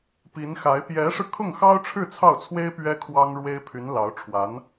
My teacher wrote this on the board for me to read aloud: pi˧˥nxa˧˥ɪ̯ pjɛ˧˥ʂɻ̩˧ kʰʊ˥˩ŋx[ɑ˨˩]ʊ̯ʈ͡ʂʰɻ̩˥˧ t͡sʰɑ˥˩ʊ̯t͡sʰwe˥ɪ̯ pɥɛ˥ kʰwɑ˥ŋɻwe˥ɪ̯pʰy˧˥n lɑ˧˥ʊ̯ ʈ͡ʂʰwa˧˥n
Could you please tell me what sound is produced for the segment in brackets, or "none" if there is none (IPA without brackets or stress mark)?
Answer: ɑ˥